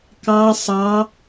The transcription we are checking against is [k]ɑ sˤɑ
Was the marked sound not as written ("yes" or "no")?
no